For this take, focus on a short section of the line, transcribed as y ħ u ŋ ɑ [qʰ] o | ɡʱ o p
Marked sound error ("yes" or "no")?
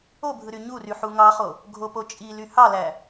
yes